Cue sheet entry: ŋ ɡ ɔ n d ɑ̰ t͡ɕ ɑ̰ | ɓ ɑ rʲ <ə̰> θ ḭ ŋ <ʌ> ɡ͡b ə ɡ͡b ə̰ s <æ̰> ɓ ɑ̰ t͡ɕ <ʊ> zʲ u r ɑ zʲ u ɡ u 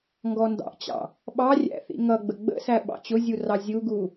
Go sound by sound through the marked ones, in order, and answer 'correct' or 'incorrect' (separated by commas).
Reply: incorrect, correct, incorrect, correct